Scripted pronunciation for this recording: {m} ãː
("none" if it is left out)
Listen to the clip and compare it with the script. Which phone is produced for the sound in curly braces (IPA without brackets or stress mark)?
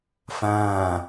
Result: f